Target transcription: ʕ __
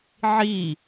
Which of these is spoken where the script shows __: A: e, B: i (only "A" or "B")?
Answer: B